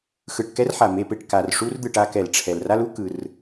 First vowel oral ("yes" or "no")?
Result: yes